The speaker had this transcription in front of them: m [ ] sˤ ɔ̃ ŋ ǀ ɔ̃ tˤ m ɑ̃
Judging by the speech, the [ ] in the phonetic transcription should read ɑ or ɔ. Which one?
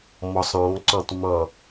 ɔ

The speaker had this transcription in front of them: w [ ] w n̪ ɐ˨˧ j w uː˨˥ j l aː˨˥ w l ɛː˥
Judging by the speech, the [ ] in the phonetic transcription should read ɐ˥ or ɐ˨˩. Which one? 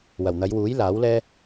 ɐ˨˩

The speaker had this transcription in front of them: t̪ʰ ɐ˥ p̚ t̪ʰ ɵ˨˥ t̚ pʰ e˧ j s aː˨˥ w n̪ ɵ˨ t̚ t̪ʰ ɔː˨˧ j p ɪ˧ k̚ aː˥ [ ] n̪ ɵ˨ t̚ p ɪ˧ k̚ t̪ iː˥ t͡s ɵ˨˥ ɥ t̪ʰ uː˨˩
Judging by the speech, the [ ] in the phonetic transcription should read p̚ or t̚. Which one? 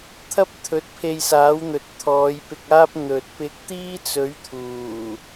p̚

